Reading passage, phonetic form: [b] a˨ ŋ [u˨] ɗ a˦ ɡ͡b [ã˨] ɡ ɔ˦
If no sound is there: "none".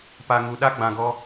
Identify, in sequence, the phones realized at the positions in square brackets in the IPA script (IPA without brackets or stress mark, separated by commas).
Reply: p, u˨, ã˨